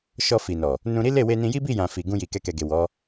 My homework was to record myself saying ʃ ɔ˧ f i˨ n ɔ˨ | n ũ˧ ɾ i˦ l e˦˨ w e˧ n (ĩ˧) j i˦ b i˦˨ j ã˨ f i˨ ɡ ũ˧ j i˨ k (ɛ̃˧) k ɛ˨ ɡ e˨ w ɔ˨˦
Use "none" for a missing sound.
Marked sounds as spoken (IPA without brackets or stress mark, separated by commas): ĩ˧, ɛ˧